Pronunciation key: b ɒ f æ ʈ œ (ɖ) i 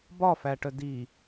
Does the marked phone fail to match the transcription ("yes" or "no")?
yes